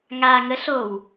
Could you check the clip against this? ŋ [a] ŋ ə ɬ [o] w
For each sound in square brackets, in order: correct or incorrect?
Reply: correct, correct

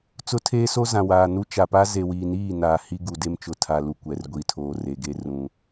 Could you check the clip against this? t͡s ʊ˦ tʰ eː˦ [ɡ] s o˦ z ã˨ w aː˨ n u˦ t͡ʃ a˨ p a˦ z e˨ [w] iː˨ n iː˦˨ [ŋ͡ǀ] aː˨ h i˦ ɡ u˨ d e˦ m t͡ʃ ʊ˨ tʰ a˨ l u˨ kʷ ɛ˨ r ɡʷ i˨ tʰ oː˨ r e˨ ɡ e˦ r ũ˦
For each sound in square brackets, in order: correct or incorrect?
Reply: incorrect: none, correct, incorrect: n

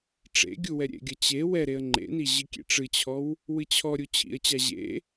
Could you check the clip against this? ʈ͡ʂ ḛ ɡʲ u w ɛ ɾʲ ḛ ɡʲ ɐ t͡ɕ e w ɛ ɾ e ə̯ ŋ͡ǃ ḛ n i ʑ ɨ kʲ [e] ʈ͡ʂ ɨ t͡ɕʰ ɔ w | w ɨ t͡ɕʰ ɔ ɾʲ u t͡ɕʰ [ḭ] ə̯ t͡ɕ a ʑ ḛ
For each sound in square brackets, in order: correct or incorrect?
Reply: incorrect: ḛ, correct

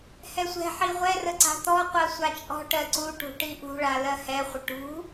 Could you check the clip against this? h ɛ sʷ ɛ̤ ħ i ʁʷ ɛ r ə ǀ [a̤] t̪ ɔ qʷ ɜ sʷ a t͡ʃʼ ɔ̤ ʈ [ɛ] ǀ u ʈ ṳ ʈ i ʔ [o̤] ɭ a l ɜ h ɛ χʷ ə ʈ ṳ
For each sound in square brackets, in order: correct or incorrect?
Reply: correct, incorrect: ɜ, incorrect: ṳ

